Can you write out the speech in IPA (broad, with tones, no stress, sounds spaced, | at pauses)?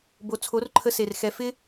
b o˨ t͡sʰ o˨˦ r ǃʰ ə˧ s e˨ r x ɛ˨ f ɪ˦